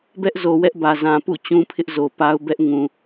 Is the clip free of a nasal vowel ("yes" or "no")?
no